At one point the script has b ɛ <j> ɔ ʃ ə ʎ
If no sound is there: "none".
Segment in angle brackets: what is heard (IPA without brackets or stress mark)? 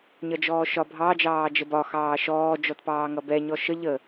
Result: ɲ